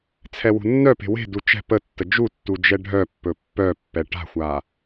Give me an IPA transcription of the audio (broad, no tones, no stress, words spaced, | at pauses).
t͡sʰɛwṳnːœpe̤ we̤du t͡ʃɛ̤ pətːə d͡ʒutːu d͡ʒɛɖʱœpːɵ pːœpːɛ ʈa̤xʷa